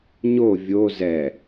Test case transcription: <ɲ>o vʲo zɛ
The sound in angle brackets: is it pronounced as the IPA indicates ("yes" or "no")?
yes